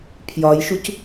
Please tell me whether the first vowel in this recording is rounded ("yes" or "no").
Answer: yes